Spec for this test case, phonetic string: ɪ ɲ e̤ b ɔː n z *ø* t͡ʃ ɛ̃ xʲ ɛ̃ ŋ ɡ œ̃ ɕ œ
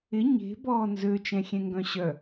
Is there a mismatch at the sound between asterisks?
no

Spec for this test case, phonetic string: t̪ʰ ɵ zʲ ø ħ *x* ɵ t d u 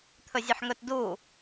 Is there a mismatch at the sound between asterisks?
yes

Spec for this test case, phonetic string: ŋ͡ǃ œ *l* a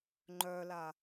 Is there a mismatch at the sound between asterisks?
no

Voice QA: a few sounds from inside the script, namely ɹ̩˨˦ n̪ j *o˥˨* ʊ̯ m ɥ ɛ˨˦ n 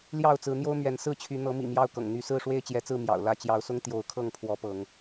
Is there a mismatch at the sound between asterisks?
yes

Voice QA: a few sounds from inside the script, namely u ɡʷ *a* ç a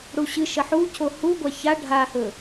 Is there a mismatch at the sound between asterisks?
no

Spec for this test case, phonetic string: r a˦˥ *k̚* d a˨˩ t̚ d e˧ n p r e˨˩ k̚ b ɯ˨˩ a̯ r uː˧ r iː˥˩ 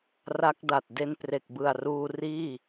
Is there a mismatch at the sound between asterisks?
no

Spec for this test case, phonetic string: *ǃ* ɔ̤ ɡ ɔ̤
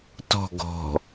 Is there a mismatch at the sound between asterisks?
yes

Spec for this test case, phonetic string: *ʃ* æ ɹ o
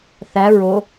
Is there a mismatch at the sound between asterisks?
yes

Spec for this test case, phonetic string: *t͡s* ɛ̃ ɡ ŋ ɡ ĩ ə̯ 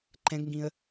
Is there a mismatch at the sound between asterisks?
yes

